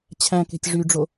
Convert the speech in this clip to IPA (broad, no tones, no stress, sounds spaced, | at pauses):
t͡ɕʰ æ̃ k e̤ tʲ ʐ y ɖ͡ʐ o